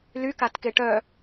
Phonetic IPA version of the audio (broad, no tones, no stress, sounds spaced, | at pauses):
l y k a t k e ʈ œ